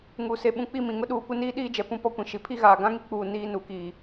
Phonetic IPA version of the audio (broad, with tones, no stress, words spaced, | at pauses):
ŋu˨ se˨ɓũ˨k͡pi˦˨ mĩ˨ŋʊ˦ɗuː˨kʷɪ˦ niː˦ɗiː˦ d͡ʒɛ˨ pũ˦pɔ˦kʷĩ˨ ʃi˨pʰi˦ɣaː˨ ɡã˦ŋi˦k͡puː˨ niː˦ nu˨˦kiː˨